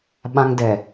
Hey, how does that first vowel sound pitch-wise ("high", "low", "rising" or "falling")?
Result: high